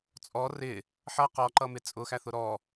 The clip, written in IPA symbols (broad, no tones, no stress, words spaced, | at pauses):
t͡sʼɔ rɪ | ħʌ qɔǃʌmɪ t͡sʼʊxæθʊ ɾɔ